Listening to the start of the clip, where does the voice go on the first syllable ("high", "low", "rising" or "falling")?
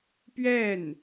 falling